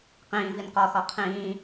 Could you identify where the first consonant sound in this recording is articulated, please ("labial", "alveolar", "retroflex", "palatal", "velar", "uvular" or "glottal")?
uvular